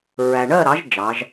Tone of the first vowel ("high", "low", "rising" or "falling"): low